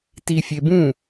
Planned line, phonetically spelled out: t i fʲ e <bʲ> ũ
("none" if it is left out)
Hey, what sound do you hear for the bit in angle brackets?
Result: b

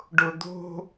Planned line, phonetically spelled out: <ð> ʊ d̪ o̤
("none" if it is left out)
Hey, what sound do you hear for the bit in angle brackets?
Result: ɖ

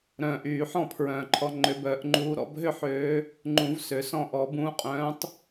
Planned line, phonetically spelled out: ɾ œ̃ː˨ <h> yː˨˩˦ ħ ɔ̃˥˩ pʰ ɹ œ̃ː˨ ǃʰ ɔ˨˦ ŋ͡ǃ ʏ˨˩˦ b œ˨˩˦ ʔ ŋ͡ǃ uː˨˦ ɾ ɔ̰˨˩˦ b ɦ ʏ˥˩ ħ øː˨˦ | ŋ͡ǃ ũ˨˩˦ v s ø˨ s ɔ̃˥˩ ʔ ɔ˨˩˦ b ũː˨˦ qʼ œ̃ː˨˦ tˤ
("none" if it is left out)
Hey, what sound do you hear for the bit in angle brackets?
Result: ʔ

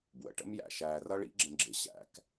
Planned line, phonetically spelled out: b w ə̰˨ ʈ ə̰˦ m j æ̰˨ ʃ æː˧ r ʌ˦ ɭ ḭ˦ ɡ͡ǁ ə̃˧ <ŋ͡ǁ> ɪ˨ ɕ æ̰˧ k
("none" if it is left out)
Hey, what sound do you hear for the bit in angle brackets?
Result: ɡ͡ǁ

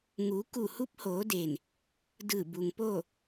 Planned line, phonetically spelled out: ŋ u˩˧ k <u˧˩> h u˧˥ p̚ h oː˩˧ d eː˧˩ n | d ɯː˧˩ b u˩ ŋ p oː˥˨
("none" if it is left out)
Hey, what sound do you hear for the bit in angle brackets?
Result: u˧˩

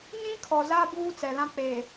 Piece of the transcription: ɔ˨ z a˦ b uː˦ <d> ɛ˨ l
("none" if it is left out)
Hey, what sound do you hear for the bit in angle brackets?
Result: t͡s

